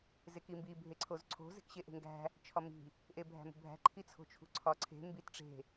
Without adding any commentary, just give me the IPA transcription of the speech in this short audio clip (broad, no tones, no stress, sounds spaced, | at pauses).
z e k i m b i bʱ e ǀʰ o z ǀʰ o̤ z e̤ k ɕ e ʔ e̤ ŋ ɡ æ̤ | t͡ʃʰ ɒ m i̤ | ʔ e bʱ æ̤ m ṳ bʱ æ̤ ǃʰ i t͡sʰ o̤ t͡ʃʰ ṳ ǀʰ ɒ ǀʰ e̤ m b i t ʈ͡ʂ e̤